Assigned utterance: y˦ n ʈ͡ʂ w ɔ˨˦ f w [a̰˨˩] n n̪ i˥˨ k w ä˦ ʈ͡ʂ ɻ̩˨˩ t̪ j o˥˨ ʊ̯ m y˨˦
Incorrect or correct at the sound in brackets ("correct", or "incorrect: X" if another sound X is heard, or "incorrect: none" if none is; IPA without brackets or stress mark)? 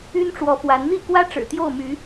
incorrect: a˨˦